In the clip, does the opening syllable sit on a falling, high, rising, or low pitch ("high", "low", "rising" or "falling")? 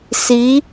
rising